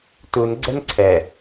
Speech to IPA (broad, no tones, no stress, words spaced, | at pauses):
tunɡ͡ǀɛn ǀʰɛ